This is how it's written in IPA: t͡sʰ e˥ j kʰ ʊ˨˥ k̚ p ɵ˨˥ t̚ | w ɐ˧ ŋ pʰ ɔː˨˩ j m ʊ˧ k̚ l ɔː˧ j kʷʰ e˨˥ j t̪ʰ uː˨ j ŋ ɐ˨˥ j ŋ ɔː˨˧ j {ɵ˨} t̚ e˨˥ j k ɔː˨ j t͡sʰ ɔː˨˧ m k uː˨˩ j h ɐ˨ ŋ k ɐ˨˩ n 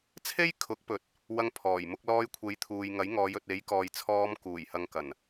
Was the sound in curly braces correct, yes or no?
yes